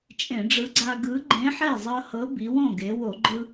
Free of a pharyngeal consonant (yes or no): no